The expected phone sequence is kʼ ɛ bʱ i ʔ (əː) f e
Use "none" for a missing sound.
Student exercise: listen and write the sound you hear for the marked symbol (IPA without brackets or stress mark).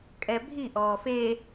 ɔː